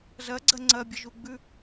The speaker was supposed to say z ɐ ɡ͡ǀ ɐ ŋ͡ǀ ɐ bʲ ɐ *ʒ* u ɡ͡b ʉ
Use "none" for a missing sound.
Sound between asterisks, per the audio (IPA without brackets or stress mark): ʒ